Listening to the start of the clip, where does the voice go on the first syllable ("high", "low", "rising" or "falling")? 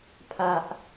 low